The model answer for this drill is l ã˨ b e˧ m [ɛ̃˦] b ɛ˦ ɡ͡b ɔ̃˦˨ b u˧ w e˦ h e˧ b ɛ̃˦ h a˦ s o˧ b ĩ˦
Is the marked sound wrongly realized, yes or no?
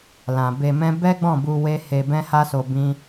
no